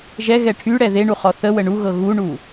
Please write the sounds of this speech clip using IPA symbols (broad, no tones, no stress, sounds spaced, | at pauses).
ʒ ɛ ɣ ɛ ʈʰ y ɽ ɛ ð e ɳ u χ ɔ θ ə w ə ɳ u ɣ ɤ ɣ u ɳ u